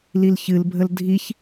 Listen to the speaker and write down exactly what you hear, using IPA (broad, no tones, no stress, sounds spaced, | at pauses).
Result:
l i l ç ɨ l bʱ ə l dʱ i ç